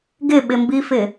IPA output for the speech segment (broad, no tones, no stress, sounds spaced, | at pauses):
ɡ ɪ ɓ ɪ m b i f ɪ